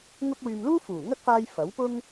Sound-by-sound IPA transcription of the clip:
ŋ ʊ˧ k̚ w yː˨ m l uː˥ f uː˨˩ ŋ ɐ˥ k̚ f aː˧ j f ɐ˨˥ w p ʊ˥ ŋ

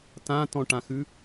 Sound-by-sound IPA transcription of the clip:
t ã t ɔ̃ ʈ ã x ʉ

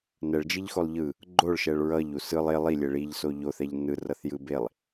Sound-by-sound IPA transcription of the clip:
n ɛ ɭ d͡ʒ i ʎ x o lˠ ʎ ɯ | ɡ͡ǃ o ɭ ʃ ɛ ɭ ɹ ʌ ʎ u s ɯ lˠ e lˠ i lʲ e ɭ i ʎ s o ʎ o θ ɛ ʎ n ɯ r ʌ θ j ɯ b e lˠ

